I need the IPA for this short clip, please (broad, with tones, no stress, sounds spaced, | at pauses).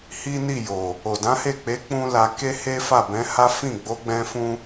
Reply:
h i˦ n i˦˨ j o˨ | o˨ d ã˨˦ h e˦˨ k͡p e˨˦ k͡p ũ˦ l a˧ k e˦ h e˦ f a˦˨ b ɛ̃˨˦ h a˦ f ĩ˦˨ ɡ͡b o˨˦ ɡ͡b ɛ̃˧ f ũ˦